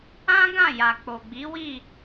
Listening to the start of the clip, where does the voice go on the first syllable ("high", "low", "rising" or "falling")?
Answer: high